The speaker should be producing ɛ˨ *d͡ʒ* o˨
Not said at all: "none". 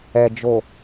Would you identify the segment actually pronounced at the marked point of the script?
d͡ʒ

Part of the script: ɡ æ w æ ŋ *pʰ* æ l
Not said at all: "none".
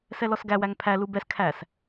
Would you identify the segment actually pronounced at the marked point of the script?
pʰ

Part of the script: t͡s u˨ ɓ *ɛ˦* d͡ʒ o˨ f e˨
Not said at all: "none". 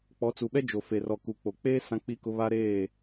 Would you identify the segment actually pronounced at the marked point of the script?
ɛ˦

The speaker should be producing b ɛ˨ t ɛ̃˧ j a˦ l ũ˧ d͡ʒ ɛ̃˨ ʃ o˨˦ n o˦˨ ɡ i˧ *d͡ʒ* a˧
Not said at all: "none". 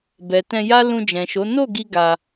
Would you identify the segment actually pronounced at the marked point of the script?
ɡ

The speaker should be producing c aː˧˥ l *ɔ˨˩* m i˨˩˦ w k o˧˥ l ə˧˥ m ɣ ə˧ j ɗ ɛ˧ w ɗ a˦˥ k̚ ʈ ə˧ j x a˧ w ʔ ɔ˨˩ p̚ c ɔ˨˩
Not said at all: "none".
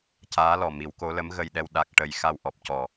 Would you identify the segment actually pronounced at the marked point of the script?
ɔ˨˩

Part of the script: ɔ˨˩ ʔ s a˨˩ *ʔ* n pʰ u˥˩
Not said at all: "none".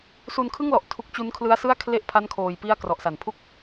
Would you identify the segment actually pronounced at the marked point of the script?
none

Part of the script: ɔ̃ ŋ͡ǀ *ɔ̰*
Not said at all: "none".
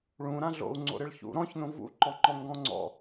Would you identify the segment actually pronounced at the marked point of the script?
ɔ̰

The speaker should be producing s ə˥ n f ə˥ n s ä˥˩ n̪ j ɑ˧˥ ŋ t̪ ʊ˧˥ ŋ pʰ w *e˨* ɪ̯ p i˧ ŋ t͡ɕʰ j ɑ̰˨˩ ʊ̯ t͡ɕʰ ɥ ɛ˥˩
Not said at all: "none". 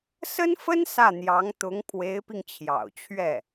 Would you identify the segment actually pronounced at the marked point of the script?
e˧˥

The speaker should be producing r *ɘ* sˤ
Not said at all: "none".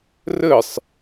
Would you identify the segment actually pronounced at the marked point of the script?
ɘ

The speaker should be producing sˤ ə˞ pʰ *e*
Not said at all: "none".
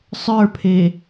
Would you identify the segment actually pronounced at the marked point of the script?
e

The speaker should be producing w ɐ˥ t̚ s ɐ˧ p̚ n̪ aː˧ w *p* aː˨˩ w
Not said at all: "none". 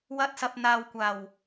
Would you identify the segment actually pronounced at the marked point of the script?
kʷ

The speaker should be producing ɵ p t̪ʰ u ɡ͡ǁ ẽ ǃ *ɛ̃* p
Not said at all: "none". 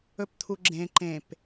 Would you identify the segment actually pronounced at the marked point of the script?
ẽ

